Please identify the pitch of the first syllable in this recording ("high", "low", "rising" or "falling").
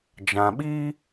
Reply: low